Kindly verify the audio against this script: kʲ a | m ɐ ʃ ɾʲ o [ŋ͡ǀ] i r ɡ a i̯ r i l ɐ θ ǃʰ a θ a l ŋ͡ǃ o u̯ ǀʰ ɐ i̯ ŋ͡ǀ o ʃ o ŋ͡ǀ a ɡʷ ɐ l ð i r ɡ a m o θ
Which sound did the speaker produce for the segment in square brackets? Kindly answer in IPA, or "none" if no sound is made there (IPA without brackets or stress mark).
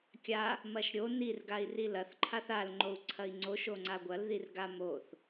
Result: n